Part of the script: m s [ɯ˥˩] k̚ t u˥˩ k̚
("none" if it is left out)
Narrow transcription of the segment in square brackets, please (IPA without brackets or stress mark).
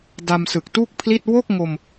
ɯ˨˩